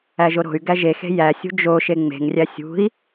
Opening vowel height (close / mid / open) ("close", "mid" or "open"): open